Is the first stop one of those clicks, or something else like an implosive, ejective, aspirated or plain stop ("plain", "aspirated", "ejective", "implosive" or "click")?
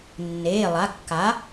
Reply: plain